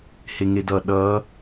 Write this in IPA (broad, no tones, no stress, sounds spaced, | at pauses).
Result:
h e ŋ e d ʌ ɗ ʌ